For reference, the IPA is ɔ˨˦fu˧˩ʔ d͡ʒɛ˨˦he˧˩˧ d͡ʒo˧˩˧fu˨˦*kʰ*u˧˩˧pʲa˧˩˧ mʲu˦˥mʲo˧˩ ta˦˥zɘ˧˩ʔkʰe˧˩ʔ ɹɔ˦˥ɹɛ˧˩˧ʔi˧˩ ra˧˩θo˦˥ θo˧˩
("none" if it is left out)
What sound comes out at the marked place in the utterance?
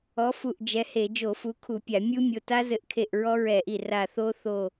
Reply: kʰ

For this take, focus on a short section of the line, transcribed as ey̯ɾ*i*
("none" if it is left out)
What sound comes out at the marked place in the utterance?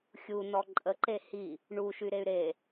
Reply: e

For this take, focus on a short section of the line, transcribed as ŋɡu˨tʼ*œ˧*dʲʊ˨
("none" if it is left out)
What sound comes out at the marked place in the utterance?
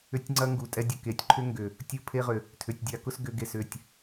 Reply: ɛ˧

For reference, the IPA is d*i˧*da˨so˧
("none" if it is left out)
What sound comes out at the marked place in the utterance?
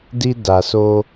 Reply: i˧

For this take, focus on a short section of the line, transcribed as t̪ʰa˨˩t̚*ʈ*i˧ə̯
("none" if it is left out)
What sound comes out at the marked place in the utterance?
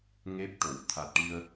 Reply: ʈ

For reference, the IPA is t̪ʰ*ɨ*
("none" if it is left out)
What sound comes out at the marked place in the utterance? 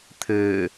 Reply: ɨː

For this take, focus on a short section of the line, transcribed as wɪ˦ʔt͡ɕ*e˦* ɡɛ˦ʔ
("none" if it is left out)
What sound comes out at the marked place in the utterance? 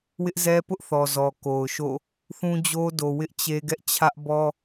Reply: e˦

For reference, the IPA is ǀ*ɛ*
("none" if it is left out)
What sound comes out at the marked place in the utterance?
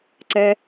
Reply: ɛ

